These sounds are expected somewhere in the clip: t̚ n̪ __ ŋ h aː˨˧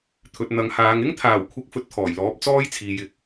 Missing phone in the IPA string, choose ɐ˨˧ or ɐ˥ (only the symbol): ɐ˨˧